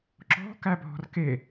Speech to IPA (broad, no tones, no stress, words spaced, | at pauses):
ǁɔ̤ kæbʱɔ̤rke